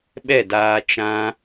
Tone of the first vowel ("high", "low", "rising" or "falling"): falling